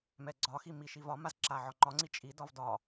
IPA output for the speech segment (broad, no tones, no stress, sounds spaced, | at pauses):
m ɛ ɡ͡ǀ ɒ x i m i ʃ i v ɒ m a z ǁ a ʕ ɒ ŋ͡ǃ ɒ ŋ͡ǀ i t͡ʃʼ i d ɒ v d ɒ